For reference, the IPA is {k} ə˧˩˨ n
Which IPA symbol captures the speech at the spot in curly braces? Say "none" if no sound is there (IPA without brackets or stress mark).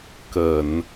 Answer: k